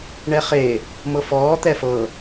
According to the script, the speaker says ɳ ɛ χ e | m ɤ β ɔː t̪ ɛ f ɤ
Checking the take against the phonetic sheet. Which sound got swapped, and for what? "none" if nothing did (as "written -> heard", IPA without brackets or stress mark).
β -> f